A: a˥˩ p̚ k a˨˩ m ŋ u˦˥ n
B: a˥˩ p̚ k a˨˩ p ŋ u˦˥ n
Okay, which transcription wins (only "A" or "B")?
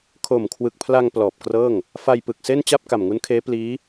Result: A